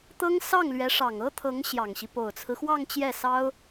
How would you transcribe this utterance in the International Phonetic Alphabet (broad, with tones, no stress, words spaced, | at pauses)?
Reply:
t̪ɤ˥ŋ sɑ˥˩ŋlɥɛ˧˥ ʂɑ˨˩ŋɤ˥t̪ʰɤ˧˥ŋ ɕjɑ˨˩ŋɕi˦ po˨˩ʊ̯t͡sʰɹ̩˦xwɑ˥˧ŋ t͡ɕjɛ˥˩sɑ˥ʊ̯